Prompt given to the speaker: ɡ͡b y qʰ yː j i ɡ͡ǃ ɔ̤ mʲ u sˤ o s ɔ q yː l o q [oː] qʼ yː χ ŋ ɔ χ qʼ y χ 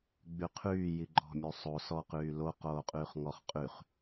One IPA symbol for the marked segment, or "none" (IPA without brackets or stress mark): oː